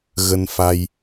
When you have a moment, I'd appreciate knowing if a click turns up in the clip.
no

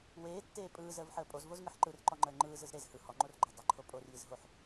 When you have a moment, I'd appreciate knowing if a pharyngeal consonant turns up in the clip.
yes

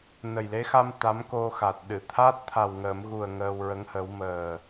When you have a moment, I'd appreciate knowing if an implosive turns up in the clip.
yes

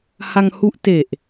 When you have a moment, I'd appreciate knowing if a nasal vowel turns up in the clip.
no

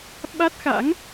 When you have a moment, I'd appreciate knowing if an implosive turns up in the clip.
yes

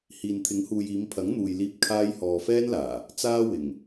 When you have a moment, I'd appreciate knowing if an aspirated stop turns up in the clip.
yes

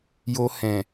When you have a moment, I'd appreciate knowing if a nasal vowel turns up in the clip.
yes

